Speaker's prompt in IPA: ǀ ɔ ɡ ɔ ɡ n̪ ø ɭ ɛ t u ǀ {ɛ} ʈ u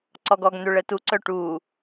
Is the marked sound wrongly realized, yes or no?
yes